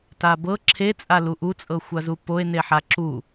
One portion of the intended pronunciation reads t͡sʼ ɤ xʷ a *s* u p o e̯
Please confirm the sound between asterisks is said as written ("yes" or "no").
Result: no